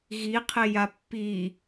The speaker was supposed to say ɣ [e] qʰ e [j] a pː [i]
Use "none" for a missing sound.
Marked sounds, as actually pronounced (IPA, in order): i, j, i

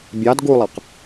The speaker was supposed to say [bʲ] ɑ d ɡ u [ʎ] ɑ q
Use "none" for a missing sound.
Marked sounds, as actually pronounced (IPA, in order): bʲ, lˠ

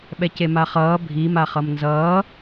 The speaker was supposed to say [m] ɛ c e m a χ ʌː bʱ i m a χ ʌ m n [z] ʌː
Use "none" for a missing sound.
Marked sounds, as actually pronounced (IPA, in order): ɓ, z

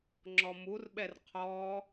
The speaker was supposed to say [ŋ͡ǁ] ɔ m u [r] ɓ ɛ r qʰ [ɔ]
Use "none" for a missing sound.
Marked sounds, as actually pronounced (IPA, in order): ŋ͡ǁ, r, ɔ

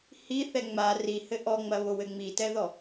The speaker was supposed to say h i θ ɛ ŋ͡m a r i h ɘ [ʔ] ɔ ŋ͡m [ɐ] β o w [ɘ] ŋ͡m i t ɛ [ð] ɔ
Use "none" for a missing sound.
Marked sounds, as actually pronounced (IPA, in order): ʔ, ɐ, ɘ, ð

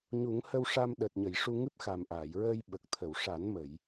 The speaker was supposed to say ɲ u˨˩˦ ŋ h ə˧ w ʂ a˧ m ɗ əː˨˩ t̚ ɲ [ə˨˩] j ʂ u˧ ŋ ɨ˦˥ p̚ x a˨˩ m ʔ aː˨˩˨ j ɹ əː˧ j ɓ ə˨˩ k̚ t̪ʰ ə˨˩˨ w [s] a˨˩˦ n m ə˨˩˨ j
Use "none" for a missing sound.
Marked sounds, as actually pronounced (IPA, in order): ə˨˩˨, ʂ

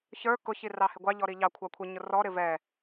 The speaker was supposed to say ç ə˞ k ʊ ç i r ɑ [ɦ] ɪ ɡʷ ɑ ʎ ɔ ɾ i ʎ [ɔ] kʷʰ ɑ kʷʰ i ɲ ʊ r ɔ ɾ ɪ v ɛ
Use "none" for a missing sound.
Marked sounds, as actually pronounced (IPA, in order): h, ɑ

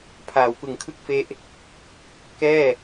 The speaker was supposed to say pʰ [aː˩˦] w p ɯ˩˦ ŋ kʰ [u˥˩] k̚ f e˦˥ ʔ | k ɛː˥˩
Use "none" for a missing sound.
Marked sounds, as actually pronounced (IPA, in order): aː˩˦, ɯ˥˩

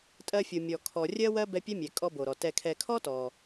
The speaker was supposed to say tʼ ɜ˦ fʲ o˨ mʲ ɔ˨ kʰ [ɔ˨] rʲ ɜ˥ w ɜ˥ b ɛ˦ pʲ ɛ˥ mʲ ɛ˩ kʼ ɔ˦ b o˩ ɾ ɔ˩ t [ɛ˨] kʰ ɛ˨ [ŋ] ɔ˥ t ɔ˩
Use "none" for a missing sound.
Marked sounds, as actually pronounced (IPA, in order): ɔ˨, ɛ˨, kʰ

